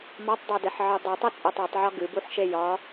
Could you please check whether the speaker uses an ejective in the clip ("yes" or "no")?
yes